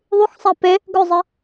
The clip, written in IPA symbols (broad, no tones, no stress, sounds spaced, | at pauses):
ðˤ u x sˤ æ p e | ɡ ɵ zˤ ɛ